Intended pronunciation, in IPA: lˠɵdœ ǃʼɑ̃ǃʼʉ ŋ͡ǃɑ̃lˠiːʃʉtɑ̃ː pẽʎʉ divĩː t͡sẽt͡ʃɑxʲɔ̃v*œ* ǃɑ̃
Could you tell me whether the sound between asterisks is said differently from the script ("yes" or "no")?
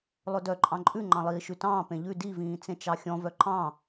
no